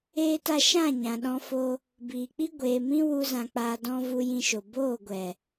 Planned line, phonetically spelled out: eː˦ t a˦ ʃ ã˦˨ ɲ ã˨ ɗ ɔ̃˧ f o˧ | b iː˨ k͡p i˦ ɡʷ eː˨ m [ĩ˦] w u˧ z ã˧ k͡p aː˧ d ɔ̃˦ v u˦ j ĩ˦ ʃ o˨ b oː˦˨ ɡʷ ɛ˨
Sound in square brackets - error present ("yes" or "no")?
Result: no